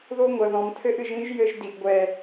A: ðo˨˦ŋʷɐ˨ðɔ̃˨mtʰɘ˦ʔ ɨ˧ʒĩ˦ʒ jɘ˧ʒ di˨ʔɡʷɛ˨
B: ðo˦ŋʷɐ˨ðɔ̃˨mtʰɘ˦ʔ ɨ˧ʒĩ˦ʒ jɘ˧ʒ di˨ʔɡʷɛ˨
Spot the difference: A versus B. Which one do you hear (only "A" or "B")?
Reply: B